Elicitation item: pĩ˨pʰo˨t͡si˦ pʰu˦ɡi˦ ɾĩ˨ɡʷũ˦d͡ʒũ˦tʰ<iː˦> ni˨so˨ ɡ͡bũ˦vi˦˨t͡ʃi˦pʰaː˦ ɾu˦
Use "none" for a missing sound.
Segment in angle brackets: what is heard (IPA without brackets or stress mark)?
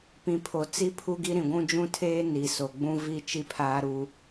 eː˦